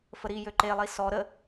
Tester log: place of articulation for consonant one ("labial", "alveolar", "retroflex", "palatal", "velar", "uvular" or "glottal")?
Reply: labial